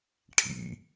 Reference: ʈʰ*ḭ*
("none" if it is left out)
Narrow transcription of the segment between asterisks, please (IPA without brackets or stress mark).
ḭ